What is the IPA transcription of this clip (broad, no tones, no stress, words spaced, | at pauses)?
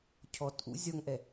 cʰɔtʔṵ zʲɒŋʔɛ